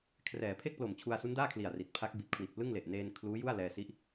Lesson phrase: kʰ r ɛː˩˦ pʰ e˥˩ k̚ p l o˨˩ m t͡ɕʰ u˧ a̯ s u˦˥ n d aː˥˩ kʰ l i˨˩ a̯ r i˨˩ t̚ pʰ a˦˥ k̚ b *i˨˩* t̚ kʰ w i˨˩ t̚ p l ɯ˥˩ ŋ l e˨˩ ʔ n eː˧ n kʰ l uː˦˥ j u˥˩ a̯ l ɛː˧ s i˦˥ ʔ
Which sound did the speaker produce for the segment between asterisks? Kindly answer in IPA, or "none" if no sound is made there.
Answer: i˨˩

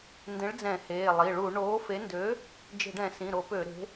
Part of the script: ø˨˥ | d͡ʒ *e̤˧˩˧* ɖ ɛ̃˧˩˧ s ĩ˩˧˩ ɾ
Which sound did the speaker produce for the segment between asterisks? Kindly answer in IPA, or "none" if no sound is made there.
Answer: e̤˧˩˧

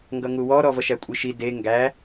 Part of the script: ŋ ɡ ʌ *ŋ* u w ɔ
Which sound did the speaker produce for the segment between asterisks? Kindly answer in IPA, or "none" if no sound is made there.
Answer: ŋ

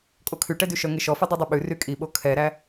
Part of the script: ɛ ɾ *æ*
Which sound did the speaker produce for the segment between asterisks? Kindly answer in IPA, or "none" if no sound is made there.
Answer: æ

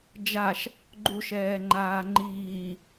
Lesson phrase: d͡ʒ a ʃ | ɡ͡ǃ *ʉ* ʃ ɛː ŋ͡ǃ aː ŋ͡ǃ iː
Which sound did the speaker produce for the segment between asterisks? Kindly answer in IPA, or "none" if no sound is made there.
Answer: u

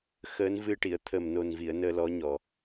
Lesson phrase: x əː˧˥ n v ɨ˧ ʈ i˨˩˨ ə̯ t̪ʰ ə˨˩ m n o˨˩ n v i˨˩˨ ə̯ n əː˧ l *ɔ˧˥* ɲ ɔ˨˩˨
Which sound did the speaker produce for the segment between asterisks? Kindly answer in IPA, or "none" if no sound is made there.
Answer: ɔ˧˥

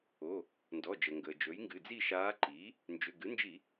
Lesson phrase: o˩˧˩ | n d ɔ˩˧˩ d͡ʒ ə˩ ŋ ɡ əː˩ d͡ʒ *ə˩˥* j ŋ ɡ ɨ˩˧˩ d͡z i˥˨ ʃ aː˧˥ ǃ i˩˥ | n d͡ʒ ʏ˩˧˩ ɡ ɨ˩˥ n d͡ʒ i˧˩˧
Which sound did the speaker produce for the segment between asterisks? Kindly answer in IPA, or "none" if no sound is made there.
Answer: ɵ˩˥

